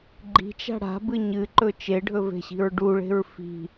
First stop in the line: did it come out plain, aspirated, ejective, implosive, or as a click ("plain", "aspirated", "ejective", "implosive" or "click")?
click